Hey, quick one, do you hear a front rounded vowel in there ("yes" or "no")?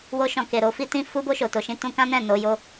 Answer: no